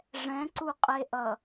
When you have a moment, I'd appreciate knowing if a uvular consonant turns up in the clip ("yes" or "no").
yes